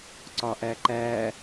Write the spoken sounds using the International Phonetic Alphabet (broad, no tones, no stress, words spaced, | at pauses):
ǀɒʔæǃæ